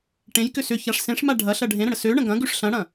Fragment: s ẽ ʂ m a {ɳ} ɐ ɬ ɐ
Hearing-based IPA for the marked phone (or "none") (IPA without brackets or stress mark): ɖʱ